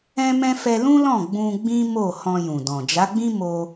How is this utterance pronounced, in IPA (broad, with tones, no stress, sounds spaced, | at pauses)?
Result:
ɛ̃˦ m ɛ̃˦ f ɛ˧ l ũ˦ l ɔ̃˦˨ ɡ͡b ũ˧ ɡ͡b ĩ˦ m o˦˨ h ɔ̃˧ j ũ˨ d ɔ̃˨ d͡ʒ a˨˦ ɡ͡b ĩ˦ m o˧